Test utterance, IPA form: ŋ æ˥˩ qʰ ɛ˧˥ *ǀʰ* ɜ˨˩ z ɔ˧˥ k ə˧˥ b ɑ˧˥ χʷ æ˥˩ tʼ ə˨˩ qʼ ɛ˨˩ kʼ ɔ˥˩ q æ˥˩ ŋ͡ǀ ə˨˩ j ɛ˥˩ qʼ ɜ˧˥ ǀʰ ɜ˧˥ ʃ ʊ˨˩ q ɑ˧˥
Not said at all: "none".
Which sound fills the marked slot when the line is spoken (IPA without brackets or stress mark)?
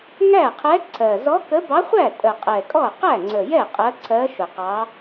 ǀʰ